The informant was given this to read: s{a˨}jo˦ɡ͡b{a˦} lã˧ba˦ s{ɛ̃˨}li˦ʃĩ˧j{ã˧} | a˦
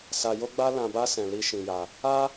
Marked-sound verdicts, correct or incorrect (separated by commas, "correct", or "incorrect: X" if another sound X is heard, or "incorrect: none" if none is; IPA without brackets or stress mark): incorrect: a˧, correct, incorrect: ɛ̃˧, incorrect: a˧